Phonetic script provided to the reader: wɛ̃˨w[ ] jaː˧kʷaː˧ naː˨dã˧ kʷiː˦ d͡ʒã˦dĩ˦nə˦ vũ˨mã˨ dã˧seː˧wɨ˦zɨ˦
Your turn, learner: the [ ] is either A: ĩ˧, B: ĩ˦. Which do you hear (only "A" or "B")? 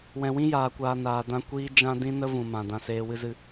B